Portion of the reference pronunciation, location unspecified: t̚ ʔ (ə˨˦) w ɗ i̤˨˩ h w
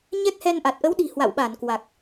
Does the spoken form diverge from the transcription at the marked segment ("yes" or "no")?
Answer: no